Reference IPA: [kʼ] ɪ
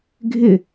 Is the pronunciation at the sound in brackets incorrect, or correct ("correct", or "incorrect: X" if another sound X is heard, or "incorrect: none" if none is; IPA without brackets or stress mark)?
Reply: incorrect: ɡʱ